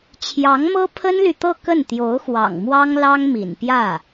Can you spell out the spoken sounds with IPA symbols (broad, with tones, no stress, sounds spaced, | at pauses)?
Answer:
t͡ɕʰ j ɑ˧˥ ŋ m ɤ˥ pʰ ə˥ n l y˨ t̪ ɤ˥˧ k ə˥˩ n t̪ j o˧˥ ʊ̯ x w ɑ̰˨˩ ŋ m w ɑ˥ ŋ l ɑ˥ ŋ m ḭ˨˩ n p j ä˥˩